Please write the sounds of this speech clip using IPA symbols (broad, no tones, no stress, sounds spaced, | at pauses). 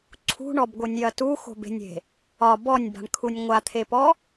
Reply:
ǀʰ ṳ ɳ ɔ b ɡʷ ɯ nʲ j ɐ t u x o̤ b e̤ nʲ e̤ | ɒ b ɔ nʲ b a̤ ɳ kʰ u nʲ ŋʷ a t̪ʰ e p ɔ